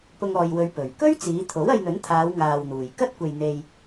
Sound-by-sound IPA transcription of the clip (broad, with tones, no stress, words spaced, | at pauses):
pʊ˧ŋɔː˨jwɵ˨˧ɥ pɵ˨˩ɥ kɵ˥ɥt͡siː˨˧t̪ʰo˨˥w ɐ˧jn̪ɵ˨˥nt̪ʰaː˨˧w ŋaː˨wn̪uː˨˩j kɐ˥t̚kʷe˨jn̪e˨j